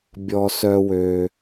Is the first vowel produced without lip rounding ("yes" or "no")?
no